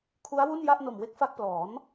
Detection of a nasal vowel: absent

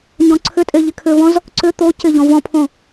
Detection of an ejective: present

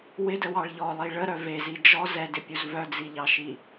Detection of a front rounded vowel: present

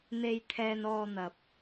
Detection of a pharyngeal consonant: absent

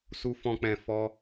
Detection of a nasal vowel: present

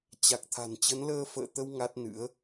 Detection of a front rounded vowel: absent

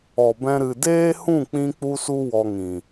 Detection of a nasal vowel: present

